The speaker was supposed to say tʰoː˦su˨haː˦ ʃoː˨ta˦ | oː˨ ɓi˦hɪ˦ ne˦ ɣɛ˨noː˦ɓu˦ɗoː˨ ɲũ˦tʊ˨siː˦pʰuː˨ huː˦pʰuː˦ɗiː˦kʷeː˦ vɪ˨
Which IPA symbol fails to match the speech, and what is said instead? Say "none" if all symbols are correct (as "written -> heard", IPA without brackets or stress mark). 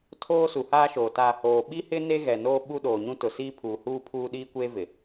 none